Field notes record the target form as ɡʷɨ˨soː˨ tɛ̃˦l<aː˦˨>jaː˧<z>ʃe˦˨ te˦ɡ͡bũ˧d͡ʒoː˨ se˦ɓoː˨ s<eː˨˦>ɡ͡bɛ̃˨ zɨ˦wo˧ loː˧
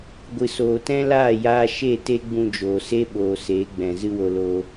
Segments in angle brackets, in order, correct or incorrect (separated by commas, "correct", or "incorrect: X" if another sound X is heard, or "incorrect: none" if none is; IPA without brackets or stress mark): correct, incorrect: none, correct